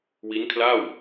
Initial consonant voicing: voiced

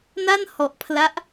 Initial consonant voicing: voiced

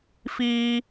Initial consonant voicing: voiceless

